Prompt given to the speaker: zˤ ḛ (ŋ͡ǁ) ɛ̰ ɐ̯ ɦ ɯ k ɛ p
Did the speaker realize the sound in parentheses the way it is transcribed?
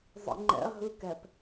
no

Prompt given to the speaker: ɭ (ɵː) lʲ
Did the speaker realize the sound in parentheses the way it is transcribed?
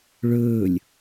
yes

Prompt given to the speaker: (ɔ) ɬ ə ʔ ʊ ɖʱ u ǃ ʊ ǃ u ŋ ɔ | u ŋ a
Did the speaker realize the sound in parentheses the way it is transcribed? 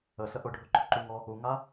no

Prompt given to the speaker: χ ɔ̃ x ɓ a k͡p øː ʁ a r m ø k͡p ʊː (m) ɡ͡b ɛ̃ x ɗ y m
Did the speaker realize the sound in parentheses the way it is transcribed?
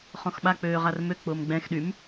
yes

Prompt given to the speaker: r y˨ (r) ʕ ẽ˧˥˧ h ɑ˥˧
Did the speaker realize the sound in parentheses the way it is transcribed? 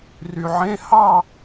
no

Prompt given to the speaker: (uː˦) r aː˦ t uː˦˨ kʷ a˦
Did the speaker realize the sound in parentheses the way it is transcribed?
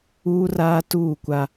yes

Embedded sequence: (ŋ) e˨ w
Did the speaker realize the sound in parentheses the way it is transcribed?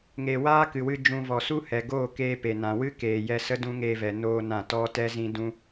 yes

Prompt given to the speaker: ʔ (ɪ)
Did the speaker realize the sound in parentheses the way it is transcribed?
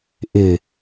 yes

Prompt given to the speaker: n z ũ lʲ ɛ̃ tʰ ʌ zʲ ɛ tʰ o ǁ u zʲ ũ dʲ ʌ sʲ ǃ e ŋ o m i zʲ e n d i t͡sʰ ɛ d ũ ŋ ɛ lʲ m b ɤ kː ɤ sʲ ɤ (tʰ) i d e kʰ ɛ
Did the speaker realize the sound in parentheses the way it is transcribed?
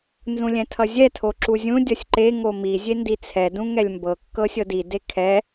no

